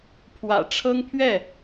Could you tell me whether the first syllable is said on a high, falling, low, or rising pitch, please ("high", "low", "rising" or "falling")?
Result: low